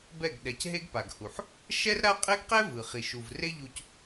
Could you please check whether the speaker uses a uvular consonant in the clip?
yes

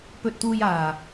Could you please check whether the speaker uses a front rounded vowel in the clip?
no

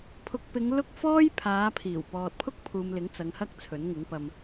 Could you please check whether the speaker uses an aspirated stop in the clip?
yes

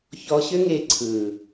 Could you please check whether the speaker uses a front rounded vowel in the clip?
yes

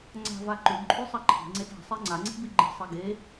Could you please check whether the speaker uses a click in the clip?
yes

